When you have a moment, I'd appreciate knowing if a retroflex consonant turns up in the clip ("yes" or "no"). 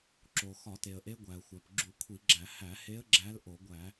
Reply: no